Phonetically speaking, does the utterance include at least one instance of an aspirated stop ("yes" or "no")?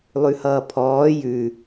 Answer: yes